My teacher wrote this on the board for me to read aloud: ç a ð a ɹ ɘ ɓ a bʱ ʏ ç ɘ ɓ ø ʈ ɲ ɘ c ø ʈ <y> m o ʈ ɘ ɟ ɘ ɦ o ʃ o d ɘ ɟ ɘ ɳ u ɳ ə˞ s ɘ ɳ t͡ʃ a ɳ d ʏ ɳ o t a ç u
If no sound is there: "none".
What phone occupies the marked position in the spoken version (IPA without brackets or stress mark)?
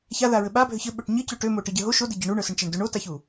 ø